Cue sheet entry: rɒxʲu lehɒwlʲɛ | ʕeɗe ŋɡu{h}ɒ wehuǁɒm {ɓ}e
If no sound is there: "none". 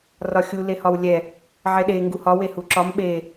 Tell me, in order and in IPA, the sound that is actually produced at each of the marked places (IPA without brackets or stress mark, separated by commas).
h, ɓ